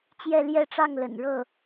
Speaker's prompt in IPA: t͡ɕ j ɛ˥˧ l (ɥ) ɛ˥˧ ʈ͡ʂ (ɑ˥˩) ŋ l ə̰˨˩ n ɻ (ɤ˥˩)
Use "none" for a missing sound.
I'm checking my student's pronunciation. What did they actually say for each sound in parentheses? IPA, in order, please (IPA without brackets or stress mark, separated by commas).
j, ɑ˥˩, ɤ˥˩